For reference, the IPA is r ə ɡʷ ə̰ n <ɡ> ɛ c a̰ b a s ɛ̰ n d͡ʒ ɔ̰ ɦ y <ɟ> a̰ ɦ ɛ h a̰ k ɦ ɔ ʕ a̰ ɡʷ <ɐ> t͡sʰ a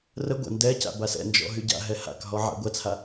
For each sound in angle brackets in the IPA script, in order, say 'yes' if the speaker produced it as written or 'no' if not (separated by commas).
no, yes, yes